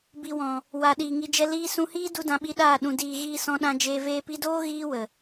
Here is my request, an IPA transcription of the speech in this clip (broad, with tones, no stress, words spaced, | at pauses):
bi˨wɔ̃˨ | wa˨ ɗiː˨ŋi˧d͡ʒɛ˦ liː˧sũ˧hiː˦ du˦dã˧ɓi˧ɗaː˦˨ ɗũ˨diː˨ɣiː˧ sɔ̃˧ɗã˧d͡ʒeː˧ veː˧pi˧doː˦ ɣiː˦wə˨